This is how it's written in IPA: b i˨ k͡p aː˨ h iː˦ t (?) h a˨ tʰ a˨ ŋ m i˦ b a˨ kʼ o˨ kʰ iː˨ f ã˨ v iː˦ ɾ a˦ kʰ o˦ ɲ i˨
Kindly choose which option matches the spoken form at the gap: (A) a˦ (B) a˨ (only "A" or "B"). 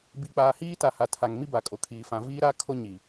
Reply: B